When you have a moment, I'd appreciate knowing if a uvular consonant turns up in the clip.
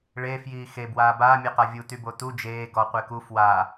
yes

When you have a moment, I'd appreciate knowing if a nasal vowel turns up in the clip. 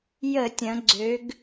yes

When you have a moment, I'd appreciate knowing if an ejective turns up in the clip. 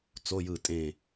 yes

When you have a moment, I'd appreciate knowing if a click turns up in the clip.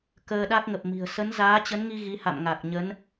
no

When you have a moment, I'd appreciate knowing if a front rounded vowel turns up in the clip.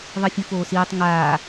no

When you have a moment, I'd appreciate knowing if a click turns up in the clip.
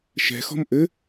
no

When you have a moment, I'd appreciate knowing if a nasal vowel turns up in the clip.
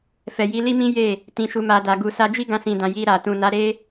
yes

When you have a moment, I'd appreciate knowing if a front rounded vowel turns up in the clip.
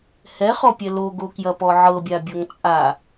no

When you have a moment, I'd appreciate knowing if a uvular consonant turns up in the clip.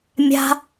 no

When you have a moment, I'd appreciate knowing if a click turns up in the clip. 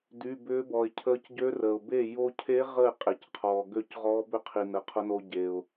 no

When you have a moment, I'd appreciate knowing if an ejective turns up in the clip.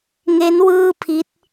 no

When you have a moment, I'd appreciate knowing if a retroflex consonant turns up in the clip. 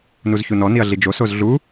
no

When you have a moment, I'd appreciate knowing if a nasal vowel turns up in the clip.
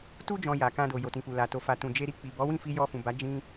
yes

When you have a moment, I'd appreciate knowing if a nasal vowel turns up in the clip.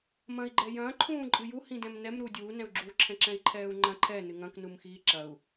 yes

